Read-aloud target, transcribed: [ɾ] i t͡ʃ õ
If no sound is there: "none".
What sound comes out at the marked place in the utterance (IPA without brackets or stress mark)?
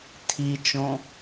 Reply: tʰ